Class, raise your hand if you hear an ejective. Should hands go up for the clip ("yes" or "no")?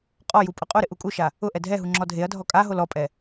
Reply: yes